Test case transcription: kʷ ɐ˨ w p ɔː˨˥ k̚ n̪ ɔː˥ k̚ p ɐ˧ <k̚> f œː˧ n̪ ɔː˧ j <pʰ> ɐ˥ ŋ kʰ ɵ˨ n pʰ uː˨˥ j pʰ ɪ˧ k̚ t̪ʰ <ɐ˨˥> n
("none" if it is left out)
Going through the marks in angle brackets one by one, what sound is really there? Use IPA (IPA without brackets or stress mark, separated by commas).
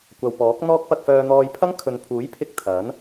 k̚, pʰ, ɐ˨˥